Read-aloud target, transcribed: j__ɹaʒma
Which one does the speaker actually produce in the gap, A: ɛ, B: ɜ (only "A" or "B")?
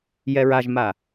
A